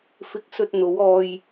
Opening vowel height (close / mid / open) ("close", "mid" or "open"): close